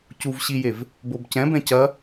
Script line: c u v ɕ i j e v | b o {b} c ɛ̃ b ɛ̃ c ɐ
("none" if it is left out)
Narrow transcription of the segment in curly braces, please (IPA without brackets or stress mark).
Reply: b